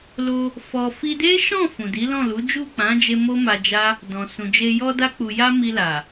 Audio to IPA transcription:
l o˧ | f ɔ˧ f i˧ d e˦ ʃ ɔ̃˦˨ f ũ˨ d i˨˦ l ɔ̃˦˨ l u˨˦ d͡ʒ u˦˨ k͡p ã˨˦ d͡ʒ e˧ m o˦ m a˧ d͡ʒ a˦ | d ɔ̃˨ s ũ˨ d͡ʒ e˧ j ɔ˧ d a˧ k͡p u˨ j a˧ m i˧ l a˨

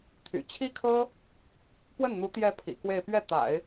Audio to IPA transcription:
t̪ʰ y̰˨˩ t͡ɕʰ i˥ kʰ ɤ˥ | p w ə˥˩ n n̪ u˧˥ t̪ j ɛ˧˥ pʰ ḭ˨˩ k w e˥˧ ɪ̯ p ɥ ɛ˥˩ t̪ a̰˨˩˦ ɪ̯

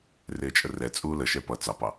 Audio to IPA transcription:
r ɪː t͡ʃʼ ə r ɛ t͡sʼ uː l ə ʃ ɛ p ʌ t͡s ɑ p ɑ

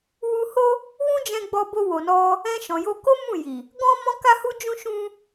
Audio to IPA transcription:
w u˧ h o˦ | w ũ˦ d͡ʒ ɛ̃˧ ɡ͡b ɔ˧ b o˧ w o˨ n ɔ˧ | ɛ̃˧ ʃ ɔ̃˨ j o˧ k o˦ m ũ˦˨ j i˨ | ɡ ɔ̃˦ m ɔ̃˦ k a˦ h u˦ d͡ʒ ũ˦ ʃ ũ˦

